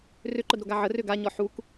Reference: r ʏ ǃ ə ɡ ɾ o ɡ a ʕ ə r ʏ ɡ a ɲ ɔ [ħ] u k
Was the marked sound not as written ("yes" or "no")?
no